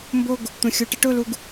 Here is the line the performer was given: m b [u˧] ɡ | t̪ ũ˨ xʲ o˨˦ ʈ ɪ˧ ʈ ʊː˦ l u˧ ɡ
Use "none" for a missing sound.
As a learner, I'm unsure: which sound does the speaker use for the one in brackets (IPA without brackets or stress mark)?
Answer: o˧